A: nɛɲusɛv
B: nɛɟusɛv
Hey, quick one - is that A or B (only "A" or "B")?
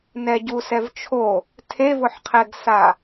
B